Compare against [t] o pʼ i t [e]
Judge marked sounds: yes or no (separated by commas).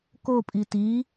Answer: no, no